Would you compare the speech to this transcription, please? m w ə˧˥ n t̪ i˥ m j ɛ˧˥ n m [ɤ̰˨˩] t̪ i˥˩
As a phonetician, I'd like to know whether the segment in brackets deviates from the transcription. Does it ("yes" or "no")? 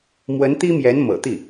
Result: no